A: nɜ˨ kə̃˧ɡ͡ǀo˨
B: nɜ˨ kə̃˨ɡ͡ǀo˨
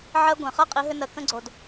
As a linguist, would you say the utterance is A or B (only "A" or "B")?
A